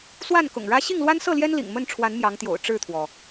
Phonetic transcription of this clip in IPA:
s w a˥˨ n k ʊ̰˨˩ ŋ ɻ ä˦ ɕ i˥˨ ŋ l w a˦ n s ɤ˥˨ l j ɛ˦ n l ḭ˨˩ ŋ m ə˥˨ n ʈ͡ʂʰ w a˨˦ n m j ɑ˨˦ ŋ t̪ j o̰˨˩ ʊ̯ ʈ͡ʂ ɻ̩˥˨ t̪ʰ w ɔ˩

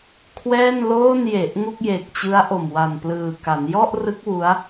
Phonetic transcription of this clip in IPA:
kʰ w ɛː˥˩ n l oː˥˩ n j e˨˩ ʔ ŋ u˥˩ k̚ j e˨˩ k̚ t͡ɕ ɯ˦˥ a̯ ʔ o˨˩ m w a˨˩ n p l ɯː˨˩ k a˩˦ n j ɔ˥˩ ʔ r ɯ˦˥ k̚ w u˦˥ a̯

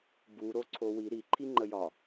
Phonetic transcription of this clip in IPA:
b u ɾ o ǀʰ o w i ɾ i ǃʰ i ŋ͡ǃ ə j ɒ

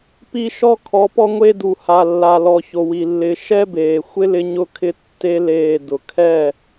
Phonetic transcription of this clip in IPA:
p i˦ ʃ ɔ˦ kʰ ɔ˨˦ p ɔ˦ ŋʷ e˦ d u˨ h a˨ lː a˨ l ɔ˨ ç o˨ w i˨ lː ɪ˨˦ ʃ ɛ˦ b eː˨ xʷ ɪ˦ l ɪ˦ ɲ ʊ˦ kʰ ɪ˦ tː e˦ l eː˦˨ d ʊ˨ kʰ ɛ˦˨

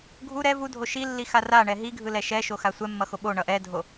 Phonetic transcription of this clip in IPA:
ɡʱ u ɾ ɛ v u dʱ o ʃ i lː i x a r a ɳ ɛ ɦ i ɡʱ ɯ l ɛ ʃ ɛ ʃ o x a sʷ ɛ mː ʌ x o ɓ o ɳ ʌ ʔ ɛ dʱ o

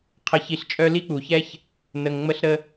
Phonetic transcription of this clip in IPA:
qʰ ə˨ ç i˨ ɬ t͡ʃʼ œ˦ l i˥ k͡p u˩ ç ɛ˥ ç | n ə˨ ŋ ŋ͡m ə˦ ɬ ɾ ə˦

